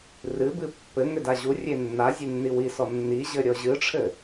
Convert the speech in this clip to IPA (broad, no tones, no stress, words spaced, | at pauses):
rɨbɨ pːɘŋʏ daʑurʲe nːa zʲenːiwisɔ nːiʑɘ ɾʲɔʑɨʈ͡ʂʰɘ